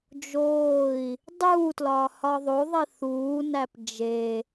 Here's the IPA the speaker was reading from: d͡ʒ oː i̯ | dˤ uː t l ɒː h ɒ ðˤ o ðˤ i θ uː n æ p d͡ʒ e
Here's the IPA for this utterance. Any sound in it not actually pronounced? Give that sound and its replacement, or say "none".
none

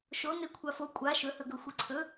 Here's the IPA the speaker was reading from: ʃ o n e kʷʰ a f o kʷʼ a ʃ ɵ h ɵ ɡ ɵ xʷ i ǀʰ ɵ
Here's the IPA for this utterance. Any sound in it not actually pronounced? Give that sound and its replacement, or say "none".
none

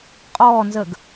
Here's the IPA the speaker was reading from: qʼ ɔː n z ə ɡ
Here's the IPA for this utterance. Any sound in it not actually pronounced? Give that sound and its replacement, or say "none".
none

